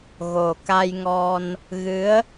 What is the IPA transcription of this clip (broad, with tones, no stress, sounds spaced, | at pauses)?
ɣ o˨˩ k a˧ j ŋ ɔ˧ n | ɣ ɨ˧˥ ə̯